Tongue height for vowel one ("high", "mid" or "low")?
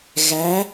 low